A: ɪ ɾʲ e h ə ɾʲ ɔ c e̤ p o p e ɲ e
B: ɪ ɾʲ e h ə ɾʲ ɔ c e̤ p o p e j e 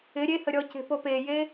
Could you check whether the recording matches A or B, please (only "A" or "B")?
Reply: B